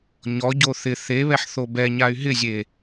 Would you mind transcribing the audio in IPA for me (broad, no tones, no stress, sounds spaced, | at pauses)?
ɲ ɔ ɟ o θ ɪ θ e β ɛ ħ θ o b ɛ ɲ a y̯ ɦ ɪ zʲ e